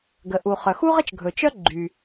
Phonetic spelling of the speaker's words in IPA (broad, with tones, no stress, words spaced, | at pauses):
ɡə˩ʔu˩χœ˩ xu˥ʁə˥t͡ʃ ɡʱɵ˩t͡ʃœ˥ ɡ͡ǃy˩